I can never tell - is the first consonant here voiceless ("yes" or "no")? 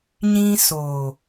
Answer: no